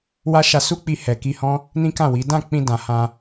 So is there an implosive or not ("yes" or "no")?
no